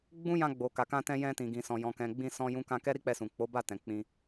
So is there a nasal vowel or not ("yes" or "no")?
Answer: yes